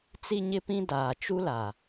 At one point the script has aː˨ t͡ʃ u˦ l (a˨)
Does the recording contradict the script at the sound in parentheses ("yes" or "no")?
no